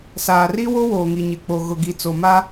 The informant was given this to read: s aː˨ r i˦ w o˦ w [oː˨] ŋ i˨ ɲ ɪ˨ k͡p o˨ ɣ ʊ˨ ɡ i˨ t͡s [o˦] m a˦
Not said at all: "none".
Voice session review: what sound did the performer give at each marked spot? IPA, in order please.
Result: oː˨, o˨

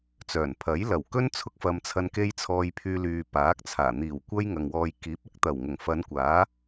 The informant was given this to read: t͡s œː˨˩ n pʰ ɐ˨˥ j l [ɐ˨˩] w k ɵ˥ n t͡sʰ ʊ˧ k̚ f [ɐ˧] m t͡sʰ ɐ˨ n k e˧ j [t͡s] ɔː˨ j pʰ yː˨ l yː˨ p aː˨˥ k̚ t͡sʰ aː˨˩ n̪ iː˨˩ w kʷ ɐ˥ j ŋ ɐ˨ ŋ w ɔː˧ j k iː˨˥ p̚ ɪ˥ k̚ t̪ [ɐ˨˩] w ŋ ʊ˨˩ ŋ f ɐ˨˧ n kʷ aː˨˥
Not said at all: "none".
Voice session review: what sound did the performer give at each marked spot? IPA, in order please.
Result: ɐ˨˩, ɐ˨, t͡sʰ, ɐ˨˩

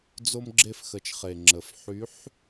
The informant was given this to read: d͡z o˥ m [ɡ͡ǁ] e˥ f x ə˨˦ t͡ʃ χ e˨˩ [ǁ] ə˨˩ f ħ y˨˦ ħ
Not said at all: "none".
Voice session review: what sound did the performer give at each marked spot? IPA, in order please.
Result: ɡ͡ǁ, ŋ͡ǁ

